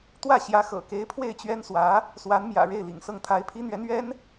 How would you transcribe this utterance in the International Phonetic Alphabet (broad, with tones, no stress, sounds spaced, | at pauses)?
t̪ w ä˥˩ ɕ j ä˧˥ x ɤ̰˨˩ k e˧˥ ɪ̯ pʰ w e˥˩ ɪ̯ t͡ɕ ɥ ɛ˥ n s w ä˧˥ | s w a˧˥ n m j ä̰˨˩ ɻ e˥˩ ɪ̯ l ḭ˨˩ ŋ s ɤ˥˩ ŋ t̪ʰ a˧˥ ɪ̯ pʰ i˥ n̪ ɥ ɛ˧˥ n ɥ ɛ˥ n